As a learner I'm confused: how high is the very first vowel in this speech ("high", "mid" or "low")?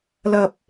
low